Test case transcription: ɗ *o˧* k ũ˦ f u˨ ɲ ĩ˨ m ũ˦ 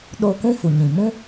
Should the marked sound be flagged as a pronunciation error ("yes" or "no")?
no